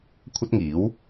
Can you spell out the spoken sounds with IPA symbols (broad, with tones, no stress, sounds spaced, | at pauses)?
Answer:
kʷʰ ɐ˥ t̚ ŋ iː˨˥ w